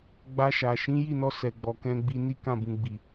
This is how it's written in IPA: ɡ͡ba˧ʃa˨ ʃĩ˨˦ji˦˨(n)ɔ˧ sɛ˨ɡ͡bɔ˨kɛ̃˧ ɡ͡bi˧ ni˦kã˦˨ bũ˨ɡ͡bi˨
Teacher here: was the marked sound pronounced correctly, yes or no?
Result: yes